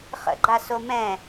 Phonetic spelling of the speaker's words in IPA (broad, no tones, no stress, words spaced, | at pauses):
χə̰ɡ͡ǃa somɛ̃